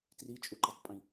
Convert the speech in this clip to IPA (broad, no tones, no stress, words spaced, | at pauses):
trit͡ʃʼuǃʌtˤpʼĩ